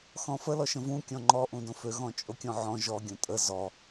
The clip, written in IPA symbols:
xɔ̃fə lɔʃə̃vũ kʲɔ̃ŋ͡ǃɔ ʔũdõfø ɣɔ̃t͡ʃʼokʲɔ̃ʕɔ̃ ʒɔ ɡʲõtʼə zɔ

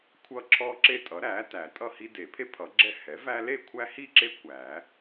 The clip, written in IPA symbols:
kʷʰʌ˦ ǁʰɔ˦ǁe˦tʼʌ˩˥ɾæ˩˥ tæ˨˩˦tʼʌ˥˨ hi˦de˨˩˦pʰe˥˨ pʰʌ˨˩˦ɡ͡ǁɛ˥˨ hɛ˩˥væ˦ le˥˨kʷʰæ˦hi˥˨ǁe˦ kʷæ˨˩˦

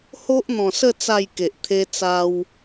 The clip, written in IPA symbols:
ho˦ʔ n̪ɔ̃˨˩sə˥˧ t͡sa˥˧jke˨ʔ t̪ʰe˧t͡sa˧w

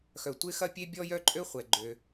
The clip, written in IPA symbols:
xœ˩tʷɪ˥xɐ˥pʲe˥ bʲɔ˥jœ˥ ǃʼø˥χʷɛ˩ ɡ͡ǃø˩

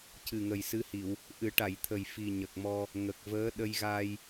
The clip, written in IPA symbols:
cɨ˨˩ŋə˨˩j sɨ˧˥hi˨˩˨w | ʔɨ˨˩˦ʈa˨˩˨jt̪ʰə˨˩j fi˨˩ɲə˨˩k̚mɔ˧ | ŋə˨˩k̚vəː˧˥ ɗə˧jɣa˧j

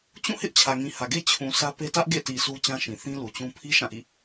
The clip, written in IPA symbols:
t͡ɕũ˦˨hɪ˦ʔ t͡ɕʰä˨ŋĩ˨hä˨ɡe˦ t͡ɕʰũ˨ sä˦pe˦ tä˦ʔ ɡḛ˦˨ti˨ su˦t͡ɕã˦ʃĩ˨ θĩ˦lu˨t͡ɕũ˦ pʰi˦ ʃã˦˨ʔḭ˦˨

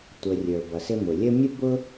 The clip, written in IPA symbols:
tʷə˨rʲə˞˩bʌ˩sɪ˦ mʊ˩ lʲə˦mʲʊ˥ bʊ˥

